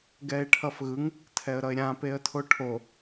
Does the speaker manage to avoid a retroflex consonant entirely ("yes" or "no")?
no